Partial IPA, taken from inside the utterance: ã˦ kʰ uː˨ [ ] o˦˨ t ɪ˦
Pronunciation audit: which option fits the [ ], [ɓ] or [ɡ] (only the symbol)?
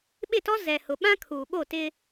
ɓ